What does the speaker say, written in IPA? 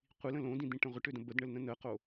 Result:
qʷ i l ə̃ l õ d ĩ d̪ ĩ ʈ ə̃ ʁʷ ə ʈ ø d ə̃ b ə d ɳ ə l n ə̃ n ə q o

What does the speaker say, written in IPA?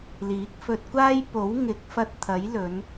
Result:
l iː˨˥ k̚ f ɵ˧ t̚ kʷ aː˥ j p o˨˥ w ŋ ɪ˨˥ k̚ f ɐ˧ t̚ t̪ʰ ɐ˨˥ j l ɵ˨˧ n

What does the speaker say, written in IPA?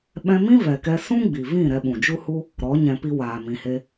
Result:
ɓ ɛ̃˦ m ĩ˦ v ɛ˨ k ɛ˧ s ũ˦ ɡ͡b i˨ v ĩ˦˨ ɾ ɛ˧ ɓ ũ˨ d͡ʒ u˦ h u˦ | ɾ ɔ˨˦ ɲ ɛ̃˧ p i˧ w aː˨ m ĩ˨ h e˧

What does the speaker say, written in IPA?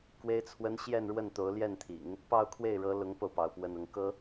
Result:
k w e˥ ɪ̯ t͡sʰ w ə˥ n ɕ j ɛ˥˧ n ɻ w ə˥˩ n t̪ o˧˥ ʊ̯ l j ɛ˥˩ n t̪ʰ ḭ˨˩˦ ŋ | p ɑ˥˧ ʊ̯ kʰ w e˥˩ ɪ̯ ɻ ɤ˧˥ l ʊ˧˥ ŋ p o˧ ʊ̯ p ɑ˧˥ ʊ̯ p w ə˥˧ n ʊ˥˩ ŋ k ɤ˥

